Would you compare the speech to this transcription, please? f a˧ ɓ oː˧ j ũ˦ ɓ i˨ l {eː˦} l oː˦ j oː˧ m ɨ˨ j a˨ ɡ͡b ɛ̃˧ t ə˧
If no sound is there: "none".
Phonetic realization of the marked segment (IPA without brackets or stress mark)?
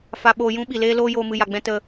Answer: eː˦